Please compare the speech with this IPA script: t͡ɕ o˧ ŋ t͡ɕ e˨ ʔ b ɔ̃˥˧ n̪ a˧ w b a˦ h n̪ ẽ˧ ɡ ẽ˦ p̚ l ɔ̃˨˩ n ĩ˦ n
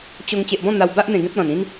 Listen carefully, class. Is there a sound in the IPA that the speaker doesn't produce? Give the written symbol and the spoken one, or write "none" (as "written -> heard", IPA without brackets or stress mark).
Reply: h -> ʔ